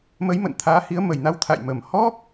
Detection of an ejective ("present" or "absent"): absent